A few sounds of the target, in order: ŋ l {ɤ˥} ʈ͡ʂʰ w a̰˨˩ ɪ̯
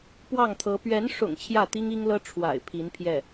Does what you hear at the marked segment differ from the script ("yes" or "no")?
no